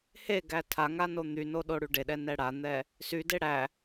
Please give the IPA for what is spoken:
h e ɡ æ tʰ a ŋ a n o n̪ y n o ɗ o ɽ y ɖ e ɗ ɛ n ɛ ɽ a n̪ ɛ | s y d e ɽ æ

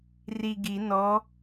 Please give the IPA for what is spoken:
r i ɡ i n ɔ

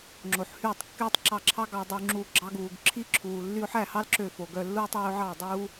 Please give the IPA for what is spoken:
ŋ͡ǁ o˨ ħ h yː˦˨ tˤ kː yː˦ tˤ ǁ ɑ˧ ǁʰ ɑ˦ ɡ ɑ˧ dˤ u˧ ŋ͡ǁ uː˧ ɡ͡ǁ ɑ˦ ɡ uː˨ ɡ ǁʰ i˦ ǁʰ uː˨ lː y˧ ʊ̯ ħ æ˦˨ h ɑ˦ l ǁ ø˦˨ f o˨ ɡ œ˧ lː u˦ tˤ øː˦ ʊ̯ ʕ ɑ˦˨ dˤ uː˦

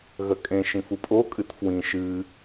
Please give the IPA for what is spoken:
ɣ ɐ kʼ ẽ ʃ ĩ f u pʼ o kʼ ɨ t f w ĩ ʃ ɨ

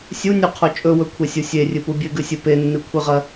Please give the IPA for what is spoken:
sʲ u nʲ u qʰ o t͡ʃʼ ɵ w ɵ kʷʰ e sʲ u sʲ e rʲ ɨ p u bʲ ɨ ɡ ʉ sʲ ɨ p e nː ɨ kʷʰ ɨ ʁ ɐ

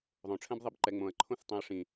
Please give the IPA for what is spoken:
ðˤ õ ʈ͡ʂʰ ɛ̃ b ðˤ i b ǃ ɛ ŋ͡m õ ɐ̯ ǃʰ õ θ tˤ ẽ ɐ̯ ʂ ĩ

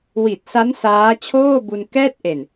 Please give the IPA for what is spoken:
w i˨˩ t̚ s a˦˥ n s aː˦˥ t͡ɕʰ oː˥˩ b u˧ n k ɛː˥˩ t̚ ʔ e˨˩ n

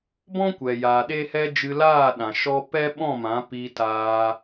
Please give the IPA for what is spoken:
b ɔ̃˦ kʷ ɛ˨ j aː˨ ɗ e˦ h ɛ˦ d͡ʒ ɨ˧ l aː˦˨ ɗ ã˨ ʃ ɔ˦ p ɛ˦ ɓ ɔ̃˦˨ m ã˨˦ p i˧ t aː˧

